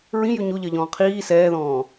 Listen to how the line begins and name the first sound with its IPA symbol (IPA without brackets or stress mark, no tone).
ɹ